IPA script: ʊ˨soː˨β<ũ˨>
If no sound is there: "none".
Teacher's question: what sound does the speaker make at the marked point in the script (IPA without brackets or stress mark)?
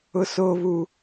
u˨